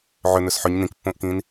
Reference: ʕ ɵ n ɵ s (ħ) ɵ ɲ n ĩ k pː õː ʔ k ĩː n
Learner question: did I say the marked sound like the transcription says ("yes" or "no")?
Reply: yes